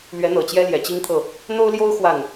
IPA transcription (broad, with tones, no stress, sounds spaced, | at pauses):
l ɥ ɛ˧˥ n̪ ɤ˨˩ t͡ɕ j ɛ˥ l j ɛ˨˩ t͡ɕ i˥ ŋ t̪ʰ ɤ˥˩ | n̪ o˥ ʊ̯ l j o˥ ʊ̯ x w a˥˩ n